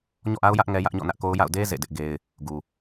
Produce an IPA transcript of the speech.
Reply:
ɲ ɔ̰˦˨ ʔ a˦ ʊ̯ j ä˦ ʔ ŋ ɛ˦ j ä˦ ʔ ɲ ɔ̰˦˨ n ä˦ ʔ k o˦ ʊ̯ j a̰˦˨ ʊ̯ d e˦ z ḛ˦˨ d ɪ˦ ʔ ɡ e˦ ɪ̯ | ɡ u˨

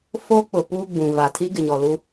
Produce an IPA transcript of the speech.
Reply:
f o˦ k͡p ʊ˨ p u˦ ɡ͡b ũ˨ v a˨ tʰ i˦ ɡ ɪ˨ ɲ ɔ˨ l u˦

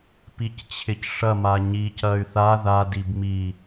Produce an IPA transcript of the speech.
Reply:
p i c t͡ɕʰ ɪ c ʂ ɐ m a ɲ i c ɐ y̯ θ a ð a d i b m i

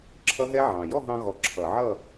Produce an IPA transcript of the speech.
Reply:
ǁʰ ʌ˦˥ ɦ ɛ˦˥ ʕ ɑ̃˨˩ j ɔ˥˨ ɦ ɑ̃˧ ɣ ɔ˨˩ ǁʰ ʌ˧˩˧ ʕ ʌ˥˨

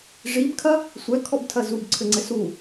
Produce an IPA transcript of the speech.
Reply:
ʐ i b kʰ ɐ | sʷ ɛ kʰ ɔ b tʰ ɐ z u b ǀʰ ɘ ŋ͡ǀ ɘ s u

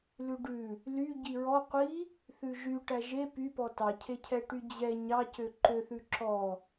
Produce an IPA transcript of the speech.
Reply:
l ʉ ɖ ʉ | l y ɟ i ɹ ɔ qʷ i | θ ʉ ʒ y ʈ æ ʒ e p y p ɔ t ɑ cʰ e cʰ ɛ ʈ y d͡ʑ ɛ ɲ ɑ c ø ǃ ø θ ʉ ǁ ɔ

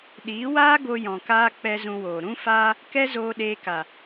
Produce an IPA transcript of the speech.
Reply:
ɗ iː˨˦ w aː˦ ɡ o˧ j ɔ̃˨ k aː˧ k͡p ɛ˦ z ũ˧ w oː˨ ɾ ũ˦ f aː˦ | k ɛ˦ z oː˧ ɗ eː˧ k a˨

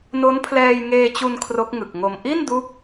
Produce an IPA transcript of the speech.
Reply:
n o˦˥ n pʰ l ɛː˧ j ŋ eː˧ t͡ɕ u˧ n kʰ r o˦˥ k̚ ŋ ɯ˨˩ k̚ ŋ o˧ m ʔ i˥˩ n d u˦˥ k̚

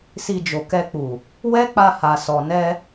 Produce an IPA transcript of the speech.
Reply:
s i˧ d͡ʒ o˨ k ɛ˧ k͡p u˨ | w ɛ˦ k͡p a˧ h a˨ s ɔ˨ n ɛ˧

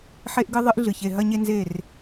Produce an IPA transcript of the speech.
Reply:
ħ e˦ ʔ ɡ ɨ˦ ðˤ ɨ˦ ʔ ɮ ɨ˨ ç e˨ ɦ ɐ˦ ɲ e˦ n z e˦˨ r

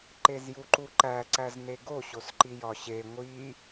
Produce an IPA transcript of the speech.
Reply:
ǃ e z j u ǃ u ǃ æ ǀ æ z n e ɡ o ɕ o s ǃ i j ɒ ɕ e ŋʷ i

